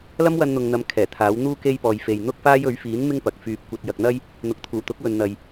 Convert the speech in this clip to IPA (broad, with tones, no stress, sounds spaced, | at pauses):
l ɐ˥ m w ɐ˧ n n̪ ʊ˨ ŋ n̪ ɐ˨˧ m kʰ ɛː˨˩ t̪ʰ aː˨˥ w n̪ uː˥ k e˥ j p ɔː˨ j f e˨ j n̪ ʊ˥ k̚ f aː˥ j ɵ˨˥ ɥ f iː˨˥ n m ɪ˥ ŋ p ɐ˨ k̚ f yː˧ p̚ kʷ ɐ˧ t̚ j ɐ˧ k̚ n̪ ɐ˥ j | n̪ ʊ˨ k̚ t̪ʰ uː˨˩ t̪ ʊ˨˥ k̚ w ɵ˨ n n̪ ɐ˨ j